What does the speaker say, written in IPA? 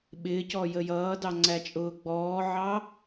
ɓɪːcɔ jəjʌːdɑ ŋ͡ǀæt͡ʃʼʊːɡ͡bɔːʕɑ

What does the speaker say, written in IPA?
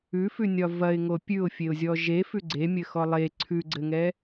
ʉfʉnʲɒ vɐɪ̯ŋo pʲʉʊ̯fʲeʊ̯zʲɔ ʒefʉ ɡ͡ǀemʲɘxɔ lˠe ǀʰʉɡ͡ǀɘŋɛ

